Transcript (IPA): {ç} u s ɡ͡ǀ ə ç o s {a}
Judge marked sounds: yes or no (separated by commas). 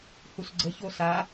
no, yes